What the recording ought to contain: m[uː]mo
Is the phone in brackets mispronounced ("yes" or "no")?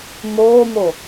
yes